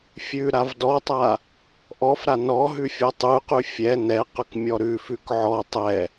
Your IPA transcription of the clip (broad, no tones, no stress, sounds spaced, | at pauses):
fʲ ʉ ɾ a v d ɔ tˤ a | ʔ ɔ f ɾ a n ɔ ɦ ʉ fʲ ɔ tˤ ʉ q ʉ fʲ ɛ n ɛ q ʉ k mʲ ɔ ɾ ʉ f ʉ k ʕ ɔ tˤ ɛ